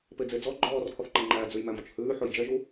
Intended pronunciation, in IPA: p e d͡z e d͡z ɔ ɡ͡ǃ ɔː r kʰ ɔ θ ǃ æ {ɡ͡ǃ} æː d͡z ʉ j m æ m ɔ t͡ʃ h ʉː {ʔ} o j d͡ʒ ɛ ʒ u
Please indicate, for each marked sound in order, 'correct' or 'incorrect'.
incorrect: ŋ͡ǃ, incorrect: ħ

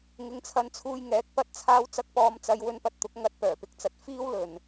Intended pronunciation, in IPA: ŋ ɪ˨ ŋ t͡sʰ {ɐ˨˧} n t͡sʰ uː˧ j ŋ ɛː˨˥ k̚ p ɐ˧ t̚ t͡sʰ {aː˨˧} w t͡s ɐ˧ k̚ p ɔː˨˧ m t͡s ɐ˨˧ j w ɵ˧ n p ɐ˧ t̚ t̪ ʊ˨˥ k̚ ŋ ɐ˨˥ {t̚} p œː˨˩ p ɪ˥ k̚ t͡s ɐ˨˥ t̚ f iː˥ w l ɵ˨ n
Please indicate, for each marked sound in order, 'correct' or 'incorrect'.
correct, incorrect: aː˧, correct

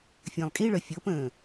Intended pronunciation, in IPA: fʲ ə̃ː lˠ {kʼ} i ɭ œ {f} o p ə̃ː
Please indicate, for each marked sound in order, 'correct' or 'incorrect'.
correct, incorrect: fʲ

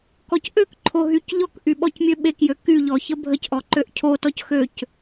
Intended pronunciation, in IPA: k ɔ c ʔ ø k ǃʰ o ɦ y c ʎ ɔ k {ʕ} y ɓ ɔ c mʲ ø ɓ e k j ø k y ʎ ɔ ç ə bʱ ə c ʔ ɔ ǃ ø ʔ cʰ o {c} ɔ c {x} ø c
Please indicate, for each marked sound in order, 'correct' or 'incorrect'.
incorrect: ʔ, incorrect: t, correct

